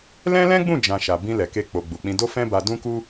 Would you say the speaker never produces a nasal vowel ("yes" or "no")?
no